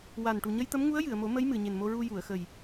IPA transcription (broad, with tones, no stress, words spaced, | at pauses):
wa˨˩n ʈu˨˩ɲə˧jt̪ə˧˥mŋu˧˥ə̯ jɨ˨˩˨ə̯mo˨˩˦ mə˧˥j mɨ˨˩˨ɲe˨˩nmo˧ɹu˧ ju˨˩˨ə̯xə˨˩j